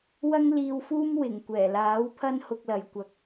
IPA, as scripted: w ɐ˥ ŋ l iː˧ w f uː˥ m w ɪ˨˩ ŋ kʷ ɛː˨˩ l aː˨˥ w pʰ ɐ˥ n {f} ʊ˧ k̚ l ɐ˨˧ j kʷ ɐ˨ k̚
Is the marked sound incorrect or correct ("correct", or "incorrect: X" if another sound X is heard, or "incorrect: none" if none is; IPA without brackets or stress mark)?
incorrect: h